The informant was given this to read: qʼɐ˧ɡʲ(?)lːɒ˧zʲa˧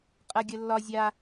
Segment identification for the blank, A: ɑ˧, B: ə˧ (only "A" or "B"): B